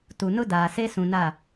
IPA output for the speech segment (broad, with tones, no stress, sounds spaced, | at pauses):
t u˨ n ʊ˦ d aː˨ s e˦ s ũ˨ n a˦˨